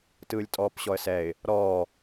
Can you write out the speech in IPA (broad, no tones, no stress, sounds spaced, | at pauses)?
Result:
t ɯː lʲ tʼ ɔː p ɕ ɔ ə̯ s ɛ ɪ̯ | ɾ ɔː